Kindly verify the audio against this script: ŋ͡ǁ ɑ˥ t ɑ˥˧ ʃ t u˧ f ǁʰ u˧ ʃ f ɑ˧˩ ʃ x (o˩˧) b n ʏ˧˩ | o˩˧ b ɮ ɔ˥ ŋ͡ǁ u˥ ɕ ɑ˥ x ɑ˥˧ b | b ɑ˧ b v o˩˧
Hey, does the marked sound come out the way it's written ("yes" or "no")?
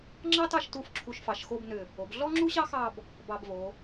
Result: no